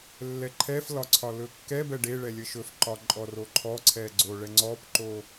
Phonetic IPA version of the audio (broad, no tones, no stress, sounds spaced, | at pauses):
lː ɛ ǃʰ ɛ f l ɒ ǀʰ ɒ l ɵ kː ɛ b ɛ ɖ e ɭ ɛ lʲ ə ʃ ɵ f ǃ ɒ ǃʼ ɔ r o ǃʰ ɔ ǀʰ ɛ ɡ͡ǀ o ɭ ɛ ŋ͡ǀ ɔ p ǃ o